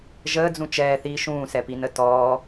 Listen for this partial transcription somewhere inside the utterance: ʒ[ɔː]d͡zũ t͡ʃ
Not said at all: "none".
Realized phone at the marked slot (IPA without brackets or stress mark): əː